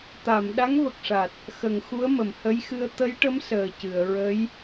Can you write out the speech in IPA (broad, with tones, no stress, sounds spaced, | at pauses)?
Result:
t̪ a˨˩˨ m ɗ a˧˥ ŋ v ə˨˩ k̚ ʂ a˨˩ t̚ | x ə˨˩˨ ŋ x u˧˥ ə̯ m ə˨˩˨ m h ə˧˥ j x ɨ˧ ə̯ t̪ ə˧˥ j ʈ ə˧˥ m s əː˨˩ c ɨ˨˩˨ ə̯ ɹ ə˧˥ j